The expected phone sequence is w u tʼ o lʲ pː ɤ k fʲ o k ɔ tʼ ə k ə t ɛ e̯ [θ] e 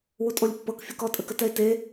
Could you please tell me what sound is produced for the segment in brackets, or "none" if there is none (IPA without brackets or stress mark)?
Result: t